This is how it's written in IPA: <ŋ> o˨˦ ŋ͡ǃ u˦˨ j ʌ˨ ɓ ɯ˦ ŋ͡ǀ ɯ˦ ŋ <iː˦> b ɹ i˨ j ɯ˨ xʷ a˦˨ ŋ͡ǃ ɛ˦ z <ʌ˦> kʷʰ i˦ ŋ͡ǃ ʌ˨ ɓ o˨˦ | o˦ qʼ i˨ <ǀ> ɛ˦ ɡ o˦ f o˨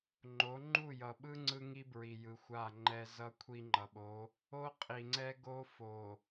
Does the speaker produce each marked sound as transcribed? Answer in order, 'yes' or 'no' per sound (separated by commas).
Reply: no, no, yes, no